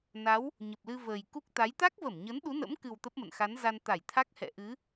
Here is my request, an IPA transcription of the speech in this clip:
n a˨˦ w | ɲ ə˨˩ p̚ l ɨ˧ v əː˨˩ j k u˦˥ k̚ t̪ a˨˦ j t̪ a˦˥ k̚ v ə˧˩ m ɲ ə˨˦ n ɗ u˨˦ n ə̰˧˥ m k ɨ˨˩ w t̪ ə˦˥ p̚ m ə̰˧˨ n x a˨˦ n z a˧ n t̪ a˧˩ j t̪ʰ a˦˥ k̚ h ɛ̰˧˨ ʔ ɨ˨˦

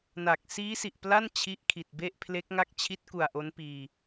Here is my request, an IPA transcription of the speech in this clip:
n a˨˩ k̚ s iː˦˥ s i˨˩ ʔ p l a˥˩ n t͡ɕʰ i˦˥ ʔ kʰ i˨˩ t̚ b e˥˩ ʔ pʰ l e˦˥ k̚ ŋ a˥˩ k̚ t͡ɕʰ i˦˥ t̚ k u˨˩ a̯ ʔ o˦˥ n p iː˧

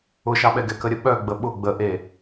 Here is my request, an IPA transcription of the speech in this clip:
ʊ ʃ ɑ ɓ ɛ ɡ ɛ k ə ɾʲ ə ɓ œ ɡ͡b ə ɓ ʊ ɡ͡b ə ʔ e

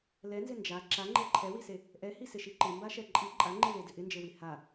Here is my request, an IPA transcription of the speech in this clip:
l ɛ n z ɪ n d͡ʒ a ǁ a ŋ͡ǃ e ǃʰ ɛ w i s e | ʔ ɛ h i s ɪ ʃ i ǃ ɪ m b a ʃ ɛ ǃʼ i ǃʼ a ŋ͡ǃ i l e d ɪ ʔ ɪ n d͡ʒ e w i h a

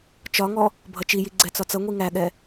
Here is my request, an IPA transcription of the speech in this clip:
t͡ʃ ɒ ŋ ɔ | bʱ ʌ t͡ʃ i j i ɡ͡ǀ ɛ t͡s ɒ t͡s ʌ ŋʷ i ŋ æ ɠ ɛ

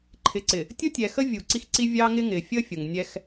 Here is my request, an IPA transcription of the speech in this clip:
ǃʰ ɪ˨ ǀ ɪ˨ | tʲ ʊ˦ tʲ ɛ˨ x ə˦ vʲ u˨ ǀ i˦ x ǀ i˦ vʲ ɑ˦ ŋ ɪ˦ ŋ ɪː˨ fʲ əː˦ fʲ ʊ˨ ŋ nʲ ɛ˦ x

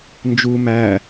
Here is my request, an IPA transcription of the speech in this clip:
n d͡ʒ u m æ

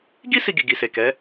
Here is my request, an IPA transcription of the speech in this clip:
ɡ i˦ s i˧ ɡ i˨ ɡ i˨ s e˨ k ɛ˨˦

